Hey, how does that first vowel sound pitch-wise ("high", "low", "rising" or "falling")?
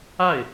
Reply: falling